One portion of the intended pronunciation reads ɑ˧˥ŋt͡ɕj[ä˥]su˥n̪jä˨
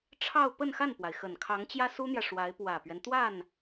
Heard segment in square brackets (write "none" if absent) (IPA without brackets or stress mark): ä˥